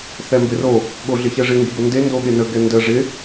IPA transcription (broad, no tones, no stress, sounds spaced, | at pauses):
θ ɛ m b ɪ r o | ɠ o ɮ ɪ ç ɛ ʐ ɪ ŋ ɡ i b o n d e n d o ɠ e n ə ɡ ɛ n d ə ʐ ɪ